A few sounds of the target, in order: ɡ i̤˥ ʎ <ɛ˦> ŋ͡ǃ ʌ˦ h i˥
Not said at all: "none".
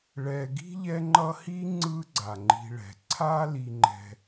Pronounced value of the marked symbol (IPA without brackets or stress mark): ɛ˦